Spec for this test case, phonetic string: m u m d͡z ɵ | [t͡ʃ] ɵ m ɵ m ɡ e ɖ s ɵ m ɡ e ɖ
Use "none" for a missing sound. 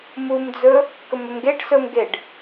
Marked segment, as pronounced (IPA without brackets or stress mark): k